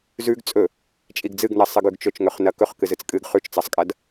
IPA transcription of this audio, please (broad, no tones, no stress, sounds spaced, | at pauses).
z ʉ ɡ t͡sʼ ɵ | t͡ʃʼ i ɡ d͡z ɨ ɡ n ɐ sˤ ɨ ɡ ʉ ɡ t͡ʃ ɵ t͡ʃ ŋ ɵ χ n ɐ k ɵ χ k ɨ z ɨ t͡s kʼ ɨ ɡ χ ʉ t͡ʃ t͡s ɐ sˤ kʼ ɐ d